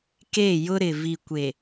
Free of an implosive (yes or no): yes